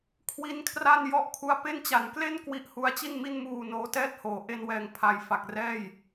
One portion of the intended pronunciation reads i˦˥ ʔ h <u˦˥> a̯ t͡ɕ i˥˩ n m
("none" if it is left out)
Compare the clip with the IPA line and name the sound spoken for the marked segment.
u˦˥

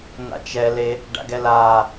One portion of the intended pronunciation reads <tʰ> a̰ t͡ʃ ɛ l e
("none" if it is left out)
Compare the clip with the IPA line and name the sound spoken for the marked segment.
n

